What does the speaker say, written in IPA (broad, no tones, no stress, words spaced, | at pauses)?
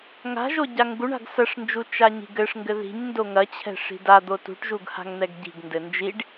ŋa̤ ʒoɟaŋɡuɳa̤ɡ sɐʂnd͡ʒu t͡ʃaɲi̤ɡɘʂŋɡɘ ði̤ɲ ndoŋɐt͡ɕʰɛ̤ ʂi̤dad̪o tṳʈʒuɡ ha̤ŋn̪ɛɡɟi̤ɡndɘ nd͡ʒiɖ